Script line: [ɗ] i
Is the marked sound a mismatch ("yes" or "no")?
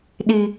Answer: no